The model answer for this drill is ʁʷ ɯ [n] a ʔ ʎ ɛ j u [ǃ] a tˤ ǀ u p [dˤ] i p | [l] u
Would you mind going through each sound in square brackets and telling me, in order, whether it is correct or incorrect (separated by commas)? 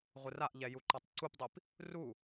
incorrect, correct, correct, incorrect